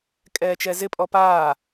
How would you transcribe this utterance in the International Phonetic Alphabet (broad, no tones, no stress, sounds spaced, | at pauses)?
kʼ ɛː t͡ʃ ɛ z ɪ pʼ ɔ p aː